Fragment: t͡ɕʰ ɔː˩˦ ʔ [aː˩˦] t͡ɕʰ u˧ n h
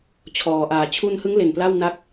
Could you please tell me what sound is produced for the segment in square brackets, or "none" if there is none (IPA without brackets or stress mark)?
aː˩˦